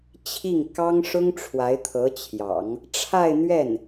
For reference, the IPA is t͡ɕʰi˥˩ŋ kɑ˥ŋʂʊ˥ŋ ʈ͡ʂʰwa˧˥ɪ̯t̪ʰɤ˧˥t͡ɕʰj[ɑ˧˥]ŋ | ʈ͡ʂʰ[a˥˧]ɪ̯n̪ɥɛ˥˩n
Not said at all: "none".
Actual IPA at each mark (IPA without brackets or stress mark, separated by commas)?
ɑ̰˨˩˦, a˥˧